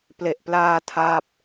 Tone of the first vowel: low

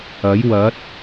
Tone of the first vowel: rising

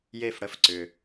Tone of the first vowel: falling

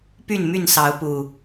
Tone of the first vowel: falling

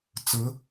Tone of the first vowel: rising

